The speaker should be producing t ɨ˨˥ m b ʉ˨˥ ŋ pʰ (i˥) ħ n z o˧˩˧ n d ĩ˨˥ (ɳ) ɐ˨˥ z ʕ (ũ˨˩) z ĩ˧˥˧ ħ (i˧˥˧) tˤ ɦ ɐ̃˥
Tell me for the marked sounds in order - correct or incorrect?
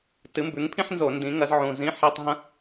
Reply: incorrect: ĩ˥, incorrect: ŋ, correct, correct

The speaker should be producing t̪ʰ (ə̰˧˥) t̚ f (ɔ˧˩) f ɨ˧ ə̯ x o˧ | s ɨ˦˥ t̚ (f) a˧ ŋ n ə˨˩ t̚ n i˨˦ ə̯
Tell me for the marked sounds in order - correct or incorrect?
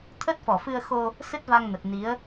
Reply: incorrect: ə˦˥, correct, incorrect: v

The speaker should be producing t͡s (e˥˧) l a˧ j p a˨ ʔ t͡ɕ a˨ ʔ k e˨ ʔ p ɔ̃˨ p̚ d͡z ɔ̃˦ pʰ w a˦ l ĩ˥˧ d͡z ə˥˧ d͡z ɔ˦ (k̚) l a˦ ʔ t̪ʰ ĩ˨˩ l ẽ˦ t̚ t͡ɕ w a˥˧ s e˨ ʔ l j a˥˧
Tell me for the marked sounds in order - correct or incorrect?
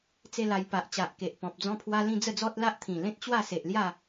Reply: correct, incorrect: t̚

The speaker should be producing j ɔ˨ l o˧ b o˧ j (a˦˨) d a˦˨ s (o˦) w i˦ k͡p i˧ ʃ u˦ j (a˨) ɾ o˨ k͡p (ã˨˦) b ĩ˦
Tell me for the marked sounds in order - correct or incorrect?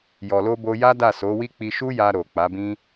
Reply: incorrect: a˦, incorrect: o˨˦, incorrect: a˧, incorrect: a˨˦

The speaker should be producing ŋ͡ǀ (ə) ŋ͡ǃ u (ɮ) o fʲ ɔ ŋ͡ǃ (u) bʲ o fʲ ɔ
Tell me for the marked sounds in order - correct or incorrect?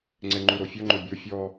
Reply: incorrect: ɛ, incorrect: ɾ, incorrect: o

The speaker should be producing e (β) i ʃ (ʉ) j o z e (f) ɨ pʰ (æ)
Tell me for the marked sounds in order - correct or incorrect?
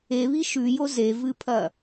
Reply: correct, correct, incorrect: v, incorrect: ɐ

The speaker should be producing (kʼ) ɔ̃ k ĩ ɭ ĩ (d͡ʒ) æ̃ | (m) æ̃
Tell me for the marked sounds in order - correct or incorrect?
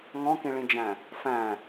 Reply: incorrect: ŋ, correct, incorrect: f

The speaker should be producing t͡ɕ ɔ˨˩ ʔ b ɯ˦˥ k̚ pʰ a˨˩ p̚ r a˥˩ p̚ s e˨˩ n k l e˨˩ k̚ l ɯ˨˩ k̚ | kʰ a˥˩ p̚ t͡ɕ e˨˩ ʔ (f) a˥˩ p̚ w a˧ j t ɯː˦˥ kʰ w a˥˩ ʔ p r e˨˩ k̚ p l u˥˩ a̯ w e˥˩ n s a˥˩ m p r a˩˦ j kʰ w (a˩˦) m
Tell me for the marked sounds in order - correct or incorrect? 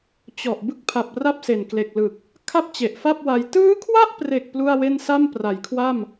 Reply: correct, incorrect: a˥˩

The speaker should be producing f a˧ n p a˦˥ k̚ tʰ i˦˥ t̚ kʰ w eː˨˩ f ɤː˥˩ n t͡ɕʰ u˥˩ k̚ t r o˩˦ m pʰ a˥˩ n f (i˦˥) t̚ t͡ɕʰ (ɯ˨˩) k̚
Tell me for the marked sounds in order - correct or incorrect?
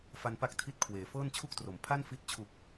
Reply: correct, incorrect: u˨˩

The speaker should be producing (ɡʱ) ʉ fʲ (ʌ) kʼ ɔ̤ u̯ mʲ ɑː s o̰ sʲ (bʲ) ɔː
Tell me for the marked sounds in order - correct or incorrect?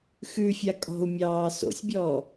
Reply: incorrect: x, incorrect: a, correct

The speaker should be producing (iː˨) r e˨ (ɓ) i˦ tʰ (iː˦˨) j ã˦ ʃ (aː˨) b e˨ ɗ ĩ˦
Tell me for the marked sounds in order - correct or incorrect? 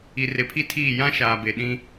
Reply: incorrect: i˨, incorrect: pʰ, correct, correct

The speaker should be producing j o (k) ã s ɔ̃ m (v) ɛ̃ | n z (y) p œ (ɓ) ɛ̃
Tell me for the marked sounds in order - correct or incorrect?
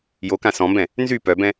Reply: correct, incorrect: b, correct, incorrect: b

